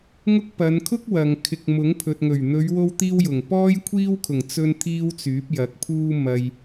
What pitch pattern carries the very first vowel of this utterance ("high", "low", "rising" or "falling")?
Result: high